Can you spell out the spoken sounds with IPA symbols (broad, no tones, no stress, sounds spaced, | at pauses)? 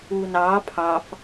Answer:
u n ɑ pʰ ɑ f